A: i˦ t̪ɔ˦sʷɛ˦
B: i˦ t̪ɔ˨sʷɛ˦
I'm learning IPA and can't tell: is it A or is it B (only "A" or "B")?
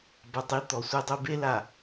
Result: B